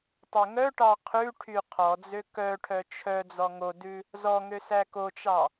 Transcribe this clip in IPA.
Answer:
tˤ ø ŋ œ ʈ ɑ qʰ ʉ ʈʰ y qʰ ɔ d͡z ø k œ ʈʰ œ t͡ʃʰ œ d͡z ɔ ŋ o d ʉ | z ɔ ŋ ø s æ k o t͡ʃ ɑ

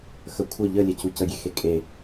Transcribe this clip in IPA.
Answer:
x ə kʷʰ œ ʎ ə lʲ ɛ c u c ə ɡʲ e x e kʼ e

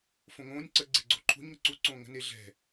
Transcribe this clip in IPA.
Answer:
f õ ŋ õː nʲ ǀ ə ɡ͡ǀ e ɡ͡ǀ o ǃʰ ṳ ɲ ŋ ə̤ ǀ u ǀ õː ŋ ə̤ n e ɮ ɛ̤

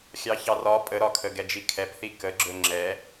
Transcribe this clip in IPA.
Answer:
xʲ ɑ ç ɑ r ɒ pʼ ə ɾ ɒ kʰ ə ɡ ɛ d͡ʒ i kʰ ɛ p θ i k ə ɡ͡ǁ ɵ ŋ͡ǁ ɛ

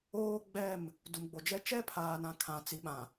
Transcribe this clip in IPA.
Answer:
oː˦ ɡ͡b ɛ˦˨ m | d u˨ m ɡ͡b o˨ d͡ʒ ɛ˦ t͡ʃ ɛ˦ pʰ aː˨ n ã˨ kʰ ã˨ t͡s i˨˦ ɓ ã˨

